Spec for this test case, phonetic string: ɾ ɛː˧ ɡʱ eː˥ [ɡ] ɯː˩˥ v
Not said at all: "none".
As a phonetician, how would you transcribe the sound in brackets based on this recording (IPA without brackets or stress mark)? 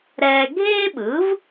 ɓ